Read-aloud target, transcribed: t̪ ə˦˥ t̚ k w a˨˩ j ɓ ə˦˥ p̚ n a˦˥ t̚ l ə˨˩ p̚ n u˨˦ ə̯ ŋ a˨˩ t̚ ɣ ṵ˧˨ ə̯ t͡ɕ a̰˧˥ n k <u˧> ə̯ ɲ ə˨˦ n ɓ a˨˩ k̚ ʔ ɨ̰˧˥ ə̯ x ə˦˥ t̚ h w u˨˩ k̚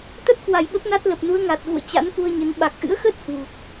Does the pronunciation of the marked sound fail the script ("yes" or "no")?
no